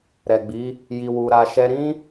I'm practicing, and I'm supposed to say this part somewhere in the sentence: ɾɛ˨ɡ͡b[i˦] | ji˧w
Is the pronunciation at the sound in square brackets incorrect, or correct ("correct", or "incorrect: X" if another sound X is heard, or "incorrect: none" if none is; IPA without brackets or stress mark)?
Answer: incorrect: i˨˦